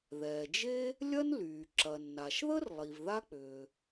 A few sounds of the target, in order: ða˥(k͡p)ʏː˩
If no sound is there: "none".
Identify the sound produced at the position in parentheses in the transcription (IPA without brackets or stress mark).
k͡p